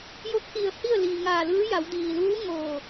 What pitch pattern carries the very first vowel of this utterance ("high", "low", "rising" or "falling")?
rising